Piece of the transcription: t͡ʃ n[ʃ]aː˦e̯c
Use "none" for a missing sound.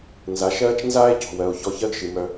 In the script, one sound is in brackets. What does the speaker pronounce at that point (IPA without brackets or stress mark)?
z